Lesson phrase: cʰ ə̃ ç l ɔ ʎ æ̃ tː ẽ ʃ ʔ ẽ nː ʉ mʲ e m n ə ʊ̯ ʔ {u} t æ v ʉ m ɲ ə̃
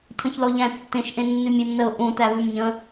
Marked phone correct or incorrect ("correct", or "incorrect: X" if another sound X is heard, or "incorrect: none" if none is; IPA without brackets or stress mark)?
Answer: incorrect: ũ